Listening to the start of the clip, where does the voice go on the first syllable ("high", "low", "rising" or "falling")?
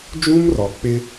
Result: high